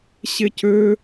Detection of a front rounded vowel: present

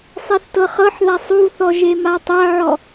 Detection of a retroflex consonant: absent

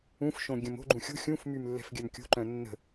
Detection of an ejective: absent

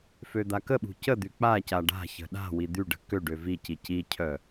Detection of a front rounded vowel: present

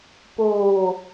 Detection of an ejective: absent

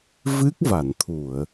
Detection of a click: absent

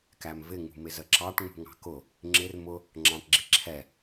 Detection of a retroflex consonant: present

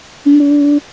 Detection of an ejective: absent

